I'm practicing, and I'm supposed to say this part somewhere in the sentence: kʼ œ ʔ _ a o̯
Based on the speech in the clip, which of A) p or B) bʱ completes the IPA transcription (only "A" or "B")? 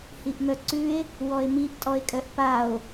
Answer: A